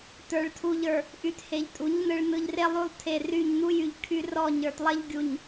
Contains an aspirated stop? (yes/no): yes